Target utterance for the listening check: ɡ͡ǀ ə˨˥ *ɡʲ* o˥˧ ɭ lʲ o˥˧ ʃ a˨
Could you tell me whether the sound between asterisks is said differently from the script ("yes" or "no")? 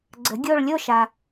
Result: no